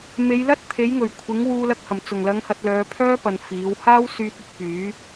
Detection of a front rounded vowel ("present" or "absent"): present